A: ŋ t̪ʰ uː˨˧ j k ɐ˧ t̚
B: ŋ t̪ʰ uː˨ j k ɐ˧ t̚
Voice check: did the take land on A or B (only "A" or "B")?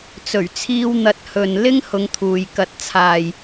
B